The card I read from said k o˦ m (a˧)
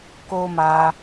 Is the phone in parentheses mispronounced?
no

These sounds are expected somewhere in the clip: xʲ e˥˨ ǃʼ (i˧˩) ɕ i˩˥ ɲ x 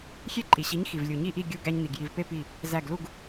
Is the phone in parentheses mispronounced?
yes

